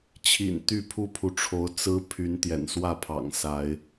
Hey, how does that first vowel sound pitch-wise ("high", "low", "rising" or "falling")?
low